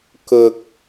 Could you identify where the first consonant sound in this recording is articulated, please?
velar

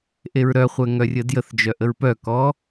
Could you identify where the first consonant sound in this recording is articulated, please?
glottal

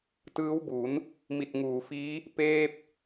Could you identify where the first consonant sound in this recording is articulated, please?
alveolar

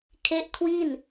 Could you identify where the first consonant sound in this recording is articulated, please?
velar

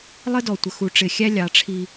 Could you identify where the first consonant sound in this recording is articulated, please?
alveolar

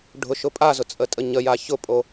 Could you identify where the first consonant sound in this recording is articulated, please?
retroflex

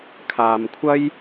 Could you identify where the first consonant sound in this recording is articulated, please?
velar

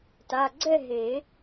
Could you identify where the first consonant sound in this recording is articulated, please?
alveolar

